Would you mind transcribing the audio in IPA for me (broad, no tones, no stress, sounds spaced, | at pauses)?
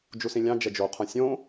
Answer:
d͡ʒ u s ĩ lʲ ɑ̃ d͡ʒ ɛ d͡ʒ o qʰ œ̃ sʲ õ